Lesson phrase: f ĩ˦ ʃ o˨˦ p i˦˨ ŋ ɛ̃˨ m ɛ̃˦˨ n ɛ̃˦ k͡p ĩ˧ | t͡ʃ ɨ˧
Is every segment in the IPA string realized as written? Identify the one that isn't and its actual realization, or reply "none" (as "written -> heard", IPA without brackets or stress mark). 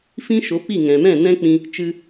none